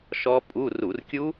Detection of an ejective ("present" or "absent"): present